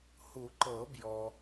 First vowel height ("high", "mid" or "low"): high